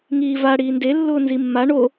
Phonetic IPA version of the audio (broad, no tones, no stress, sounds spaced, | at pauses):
ŋ iː v a ɽ iː n d e lː ʊː n z i mː a ɳ o